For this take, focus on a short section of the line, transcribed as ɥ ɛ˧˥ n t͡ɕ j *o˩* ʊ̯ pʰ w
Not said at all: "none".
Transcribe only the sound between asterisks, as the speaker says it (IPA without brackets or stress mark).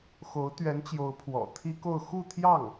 o˧˥